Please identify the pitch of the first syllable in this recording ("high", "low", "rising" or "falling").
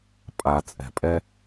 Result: low